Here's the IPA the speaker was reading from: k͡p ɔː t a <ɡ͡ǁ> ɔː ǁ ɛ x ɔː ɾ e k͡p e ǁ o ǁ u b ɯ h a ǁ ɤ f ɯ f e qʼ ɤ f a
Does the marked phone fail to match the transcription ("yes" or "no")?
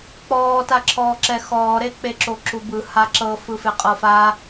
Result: yes